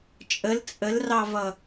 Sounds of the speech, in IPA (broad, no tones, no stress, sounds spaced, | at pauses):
t͡ʃʼ ə l t͡sʼ ə l r ɑ v ʌ